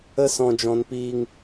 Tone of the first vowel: high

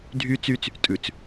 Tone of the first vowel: high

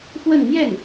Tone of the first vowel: falling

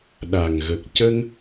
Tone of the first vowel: low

